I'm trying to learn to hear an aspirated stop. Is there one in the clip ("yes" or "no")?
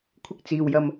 yes